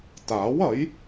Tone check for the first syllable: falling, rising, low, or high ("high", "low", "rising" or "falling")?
rising